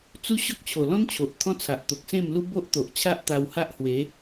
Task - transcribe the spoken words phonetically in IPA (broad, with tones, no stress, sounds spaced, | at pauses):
t͡s u˦ ɕ ɔ˦ k̚ t͡ɕʰ o˨˩ l ɔ̃˦ n t͡ɕʰ o˨ ʔ t̪ʰ ɔ̃˦ t͡sʰ a˨ ʔ t̪ o˨ k̚ s ẽ˥˧ m l u˦ b o˦ ʔ t̪ o˨ ʔ t͡ɕʰ a˦ ʔ t̪ a˧ w h a˦ ʔ h w e˨˦